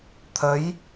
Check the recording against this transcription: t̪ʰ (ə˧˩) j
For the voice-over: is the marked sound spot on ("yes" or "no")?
no